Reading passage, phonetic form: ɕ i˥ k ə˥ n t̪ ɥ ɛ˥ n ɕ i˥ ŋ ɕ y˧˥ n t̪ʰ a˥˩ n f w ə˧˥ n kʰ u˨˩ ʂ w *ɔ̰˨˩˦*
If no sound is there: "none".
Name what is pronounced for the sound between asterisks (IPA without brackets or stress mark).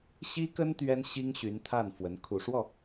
ɔ˥˩